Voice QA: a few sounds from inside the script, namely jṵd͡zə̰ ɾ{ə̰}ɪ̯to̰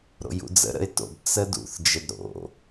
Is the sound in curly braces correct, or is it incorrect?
correct